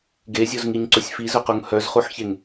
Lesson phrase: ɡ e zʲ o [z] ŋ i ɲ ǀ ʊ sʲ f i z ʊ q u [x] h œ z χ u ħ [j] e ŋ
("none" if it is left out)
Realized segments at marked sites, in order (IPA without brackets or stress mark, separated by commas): z, ŋ, ç